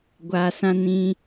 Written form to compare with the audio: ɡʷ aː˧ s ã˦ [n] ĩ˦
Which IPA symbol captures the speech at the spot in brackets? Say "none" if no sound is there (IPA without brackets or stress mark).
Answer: n